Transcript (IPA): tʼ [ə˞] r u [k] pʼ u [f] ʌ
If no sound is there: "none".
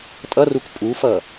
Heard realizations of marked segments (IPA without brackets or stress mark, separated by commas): ʌ, k, f